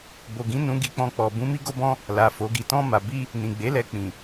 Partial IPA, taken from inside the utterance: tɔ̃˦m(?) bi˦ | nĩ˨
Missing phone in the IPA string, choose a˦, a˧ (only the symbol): a˧